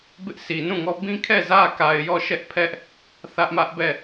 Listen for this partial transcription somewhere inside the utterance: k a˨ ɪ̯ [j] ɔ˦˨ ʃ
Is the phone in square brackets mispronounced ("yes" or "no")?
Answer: no